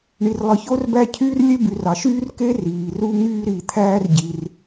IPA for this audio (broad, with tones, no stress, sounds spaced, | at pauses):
ɳ i˩ r lˠ ɯ˩ ç o˥ r b æ˥ cʰ yː˥ r lʲ e˥ b y˩ r ɑ˩ ʃ yː˥ r k e˥ r iː˩ r u˥ ŋ yː˥ ɾ i˩ t̪ʰ æː˥ r ɟ i˩ r